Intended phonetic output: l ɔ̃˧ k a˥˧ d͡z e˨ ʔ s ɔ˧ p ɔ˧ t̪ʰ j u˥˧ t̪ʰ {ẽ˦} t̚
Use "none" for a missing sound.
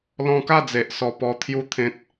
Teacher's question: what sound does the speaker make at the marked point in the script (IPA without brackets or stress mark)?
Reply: ẽ˦